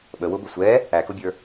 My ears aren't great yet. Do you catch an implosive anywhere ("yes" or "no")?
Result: yes